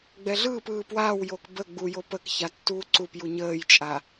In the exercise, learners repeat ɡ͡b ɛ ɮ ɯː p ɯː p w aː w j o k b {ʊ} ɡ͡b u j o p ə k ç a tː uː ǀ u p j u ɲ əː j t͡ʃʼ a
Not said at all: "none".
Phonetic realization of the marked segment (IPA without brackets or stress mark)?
ə